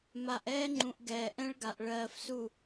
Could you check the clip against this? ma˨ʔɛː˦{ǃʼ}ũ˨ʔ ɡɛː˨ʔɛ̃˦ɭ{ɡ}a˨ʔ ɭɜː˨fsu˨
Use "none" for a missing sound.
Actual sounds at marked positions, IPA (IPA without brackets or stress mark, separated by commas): ŋ͡ǃ, ɡ